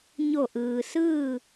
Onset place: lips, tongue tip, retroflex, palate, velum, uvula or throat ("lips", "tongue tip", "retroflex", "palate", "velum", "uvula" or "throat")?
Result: palate